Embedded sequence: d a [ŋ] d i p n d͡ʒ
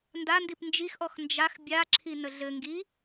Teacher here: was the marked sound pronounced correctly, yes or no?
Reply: no